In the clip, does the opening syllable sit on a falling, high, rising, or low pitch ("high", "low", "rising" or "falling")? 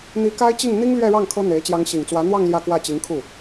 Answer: rising